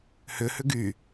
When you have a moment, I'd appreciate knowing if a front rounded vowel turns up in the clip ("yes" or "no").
yes